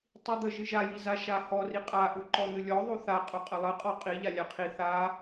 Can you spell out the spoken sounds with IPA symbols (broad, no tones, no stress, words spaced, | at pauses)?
tˤid̪ə ʒɨʒajiza ʃahɔri qʼaʔu ǃɔn̪ɨlʲɔ ðˤuθa qʼuqʼəlˠɨqʼɔ qʼi ʎalʲaqʰi θa